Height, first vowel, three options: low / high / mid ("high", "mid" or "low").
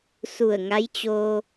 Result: high